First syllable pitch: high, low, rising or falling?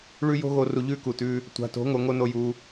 high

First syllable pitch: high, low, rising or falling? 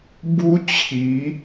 high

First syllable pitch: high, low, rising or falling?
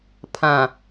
low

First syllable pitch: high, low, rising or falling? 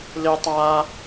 high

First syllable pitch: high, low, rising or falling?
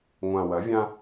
low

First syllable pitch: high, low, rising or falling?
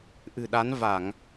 low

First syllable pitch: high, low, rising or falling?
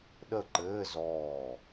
falling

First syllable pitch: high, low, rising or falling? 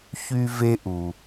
high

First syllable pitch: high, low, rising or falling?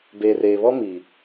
low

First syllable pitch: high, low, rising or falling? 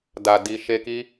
low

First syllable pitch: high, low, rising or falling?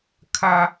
high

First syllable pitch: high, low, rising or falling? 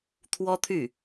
high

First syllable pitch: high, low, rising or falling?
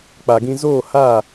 low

